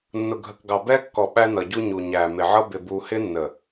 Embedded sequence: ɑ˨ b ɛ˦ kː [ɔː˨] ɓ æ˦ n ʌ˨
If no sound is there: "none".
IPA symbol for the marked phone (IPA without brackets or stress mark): ɔ˨